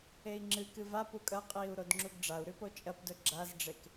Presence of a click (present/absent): present